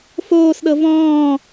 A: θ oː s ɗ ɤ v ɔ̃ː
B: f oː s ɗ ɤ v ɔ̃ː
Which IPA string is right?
B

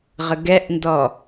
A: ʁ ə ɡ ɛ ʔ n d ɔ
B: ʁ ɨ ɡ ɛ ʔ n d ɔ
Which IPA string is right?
A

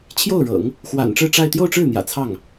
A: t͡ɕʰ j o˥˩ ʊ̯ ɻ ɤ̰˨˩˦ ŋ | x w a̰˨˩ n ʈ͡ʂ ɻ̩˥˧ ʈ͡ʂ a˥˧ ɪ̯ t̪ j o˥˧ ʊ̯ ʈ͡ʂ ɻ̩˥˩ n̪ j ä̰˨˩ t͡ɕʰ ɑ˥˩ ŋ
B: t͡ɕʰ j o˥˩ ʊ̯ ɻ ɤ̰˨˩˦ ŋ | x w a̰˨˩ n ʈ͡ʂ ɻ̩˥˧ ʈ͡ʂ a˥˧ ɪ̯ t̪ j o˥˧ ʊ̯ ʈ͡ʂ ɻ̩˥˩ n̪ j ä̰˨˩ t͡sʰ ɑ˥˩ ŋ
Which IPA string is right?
B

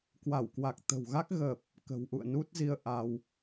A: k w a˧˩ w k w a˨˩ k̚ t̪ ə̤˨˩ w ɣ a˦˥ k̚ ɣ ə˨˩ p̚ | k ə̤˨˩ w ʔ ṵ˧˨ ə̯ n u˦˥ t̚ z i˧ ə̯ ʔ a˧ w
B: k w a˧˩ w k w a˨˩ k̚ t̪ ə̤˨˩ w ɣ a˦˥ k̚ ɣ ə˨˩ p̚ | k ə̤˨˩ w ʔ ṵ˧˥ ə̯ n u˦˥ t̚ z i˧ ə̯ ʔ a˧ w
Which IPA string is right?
A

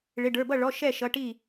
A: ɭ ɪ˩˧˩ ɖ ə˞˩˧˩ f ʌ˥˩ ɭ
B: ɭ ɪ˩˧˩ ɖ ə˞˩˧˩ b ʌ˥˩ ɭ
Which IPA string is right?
B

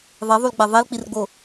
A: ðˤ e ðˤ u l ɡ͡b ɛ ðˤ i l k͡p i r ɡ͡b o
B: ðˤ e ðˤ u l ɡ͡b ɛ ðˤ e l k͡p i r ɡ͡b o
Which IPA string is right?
B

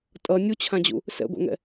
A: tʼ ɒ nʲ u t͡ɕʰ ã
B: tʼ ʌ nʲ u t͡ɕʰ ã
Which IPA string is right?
B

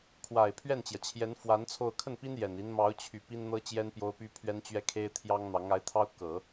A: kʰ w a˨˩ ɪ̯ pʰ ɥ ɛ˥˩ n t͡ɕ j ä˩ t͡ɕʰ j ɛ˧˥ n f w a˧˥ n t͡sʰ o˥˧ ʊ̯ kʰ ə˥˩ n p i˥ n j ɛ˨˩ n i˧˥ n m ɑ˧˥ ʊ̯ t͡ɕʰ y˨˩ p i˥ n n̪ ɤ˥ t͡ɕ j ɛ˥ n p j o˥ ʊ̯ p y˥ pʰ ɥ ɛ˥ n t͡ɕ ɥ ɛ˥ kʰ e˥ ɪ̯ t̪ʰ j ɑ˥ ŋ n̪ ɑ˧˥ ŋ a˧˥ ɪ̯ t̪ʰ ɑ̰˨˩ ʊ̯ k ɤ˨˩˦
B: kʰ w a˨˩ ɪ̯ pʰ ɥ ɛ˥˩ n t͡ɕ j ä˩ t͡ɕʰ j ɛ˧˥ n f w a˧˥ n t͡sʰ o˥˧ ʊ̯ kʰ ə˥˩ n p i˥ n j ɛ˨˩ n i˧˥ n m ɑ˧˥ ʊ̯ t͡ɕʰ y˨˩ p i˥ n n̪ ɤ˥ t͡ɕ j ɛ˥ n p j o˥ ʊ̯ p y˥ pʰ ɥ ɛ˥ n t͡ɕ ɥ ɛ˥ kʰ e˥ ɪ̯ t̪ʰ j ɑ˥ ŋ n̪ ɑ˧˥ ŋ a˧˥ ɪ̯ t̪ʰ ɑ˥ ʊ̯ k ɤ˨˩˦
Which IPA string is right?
B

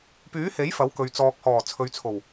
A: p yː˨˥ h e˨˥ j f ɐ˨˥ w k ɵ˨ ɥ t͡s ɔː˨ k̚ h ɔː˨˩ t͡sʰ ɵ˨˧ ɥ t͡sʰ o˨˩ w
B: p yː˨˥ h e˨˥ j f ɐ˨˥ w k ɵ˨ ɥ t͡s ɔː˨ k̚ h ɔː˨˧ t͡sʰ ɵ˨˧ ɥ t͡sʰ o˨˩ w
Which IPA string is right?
A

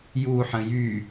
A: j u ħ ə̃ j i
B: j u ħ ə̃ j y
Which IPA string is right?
B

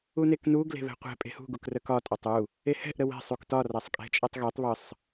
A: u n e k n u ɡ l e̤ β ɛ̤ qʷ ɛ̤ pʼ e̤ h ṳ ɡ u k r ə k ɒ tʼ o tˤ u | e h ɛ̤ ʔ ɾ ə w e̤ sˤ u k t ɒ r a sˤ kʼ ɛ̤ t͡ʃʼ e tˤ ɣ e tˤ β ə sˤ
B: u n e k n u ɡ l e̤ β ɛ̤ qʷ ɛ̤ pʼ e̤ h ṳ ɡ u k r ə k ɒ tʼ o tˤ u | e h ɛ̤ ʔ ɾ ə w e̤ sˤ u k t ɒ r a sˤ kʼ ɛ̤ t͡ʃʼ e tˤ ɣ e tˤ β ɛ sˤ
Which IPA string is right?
A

